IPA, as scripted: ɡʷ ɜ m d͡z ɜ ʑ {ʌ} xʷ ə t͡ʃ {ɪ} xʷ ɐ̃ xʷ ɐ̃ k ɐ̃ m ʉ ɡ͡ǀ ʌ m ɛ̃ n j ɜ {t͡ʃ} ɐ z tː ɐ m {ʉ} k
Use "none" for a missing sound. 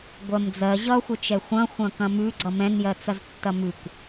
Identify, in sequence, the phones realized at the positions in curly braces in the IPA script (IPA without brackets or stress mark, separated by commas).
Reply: ʌ, ɛ, t͡s, ʉ